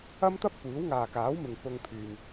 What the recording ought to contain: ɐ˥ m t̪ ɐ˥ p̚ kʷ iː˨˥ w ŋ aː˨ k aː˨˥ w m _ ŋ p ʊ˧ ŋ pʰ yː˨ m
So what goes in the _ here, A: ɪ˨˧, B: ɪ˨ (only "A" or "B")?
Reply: B